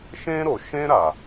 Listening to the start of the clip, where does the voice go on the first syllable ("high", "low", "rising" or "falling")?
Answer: high